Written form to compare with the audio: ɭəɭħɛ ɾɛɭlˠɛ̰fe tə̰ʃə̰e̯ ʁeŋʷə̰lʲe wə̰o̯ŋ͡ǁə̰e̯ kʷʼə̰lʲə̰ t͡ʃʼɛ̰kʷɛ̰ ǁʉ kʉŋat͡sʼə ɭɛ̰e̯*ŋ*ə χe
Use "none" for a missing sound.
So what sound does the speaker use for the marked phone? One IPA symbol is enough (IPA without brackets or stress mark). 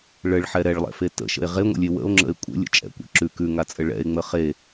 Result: ŋ͡m